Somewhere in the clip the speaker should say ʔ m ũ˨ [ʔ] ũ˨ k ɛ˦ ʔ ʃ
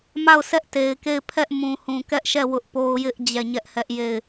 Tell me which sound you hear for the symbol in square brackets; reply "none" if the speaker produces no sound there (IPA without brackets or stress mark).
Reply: h